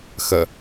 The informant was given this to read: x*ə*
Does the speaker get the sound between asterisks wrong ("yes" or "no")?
no